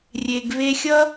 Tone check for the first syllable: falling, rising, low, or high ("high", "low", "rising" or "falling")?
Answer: low